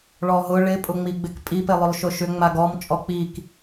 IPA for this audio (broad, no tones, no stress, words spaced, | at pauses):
ɭɔɦʊ ɭɪ pʼʊŋ͡miɡ͡bɪkpʼi pɪlˠʏlˠʃʊʃʏ ŋ͡maɡɔm t͡ʃʼɔk͡pik